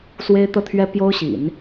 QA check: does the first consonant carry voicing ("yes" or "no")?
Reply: no